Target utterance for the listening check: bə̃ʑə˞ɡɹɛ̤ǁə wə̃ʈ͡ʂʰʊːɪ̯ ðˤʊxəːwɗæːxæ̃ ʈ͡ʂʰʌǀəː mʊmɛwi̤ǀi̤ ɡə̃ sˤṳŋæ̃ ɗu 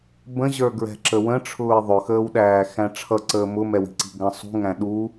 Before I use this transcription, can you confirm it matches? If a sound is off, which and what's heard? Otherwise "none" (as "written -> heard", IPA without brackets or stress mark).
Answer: none